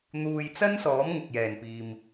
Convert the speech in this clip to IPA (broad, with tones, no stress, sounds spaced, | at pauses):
n̪ uː˨ j t͡s ɐ˥ n s ɔː˨˥ m ŋ ʊ˨ k̚ j ɛː˨˩ n p iː˨ m